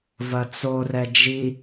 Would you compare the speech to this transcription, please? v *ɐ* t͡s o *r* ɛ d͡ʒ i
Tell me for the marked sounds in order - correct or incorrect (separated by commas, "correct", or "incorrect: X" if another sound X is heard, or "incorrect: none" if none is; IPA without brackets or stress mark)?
correct, correct